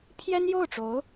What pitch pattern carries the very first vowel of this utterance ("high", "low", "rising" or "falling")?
high